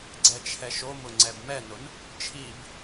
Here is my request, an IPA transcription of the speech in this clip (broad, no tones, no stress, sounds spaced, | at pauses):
ɡ͡ǀ ɛ t͡ʃʰ ɛ ʃ o m ʊ ŋ͡ǀ ɛ b m ɛ n ʊ n | t͡ʃʰ i b